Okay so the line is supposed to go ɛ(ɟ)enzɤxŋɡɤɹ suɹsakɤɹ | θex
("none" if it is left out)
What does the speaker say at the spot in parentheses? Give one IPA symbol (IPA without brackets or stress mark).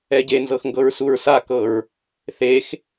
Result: ɟ